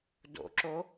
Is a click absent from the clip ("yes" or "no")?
no